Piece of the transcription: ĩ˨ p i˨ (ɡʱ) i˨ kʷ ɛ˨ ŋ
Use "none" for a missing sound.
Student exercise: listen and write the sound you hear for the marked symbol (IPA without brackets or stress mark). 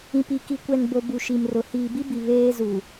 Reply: k